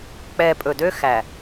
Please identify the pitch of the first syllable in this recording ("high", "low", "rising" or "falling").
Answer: low